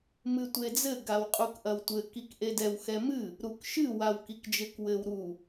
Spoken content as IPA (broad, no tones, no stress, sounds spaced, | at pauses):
m ɨ tʷ e d͡z ɘ ɡ a w qʼ u k ʔ ɐ w tʷ ɘ k i k ʔ e d ɛ w x ɛ m ɨ | ɾ u k ʃ ɨ w a w k i k d͡ʒ ɘ k w ɘ w ɾ u